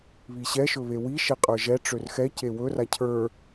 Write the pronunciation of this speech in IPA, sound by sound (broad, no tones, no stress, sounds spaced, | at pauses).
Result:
β i ɕ ɛ ʃ ɵ β e w i ʃ e qʼ ə˞ ʒ ɛ ʈ͡ʂ ø r x ɛ c e w ɵ r a cʰ ə˞